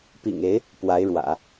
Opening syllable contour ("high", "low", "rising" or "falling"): low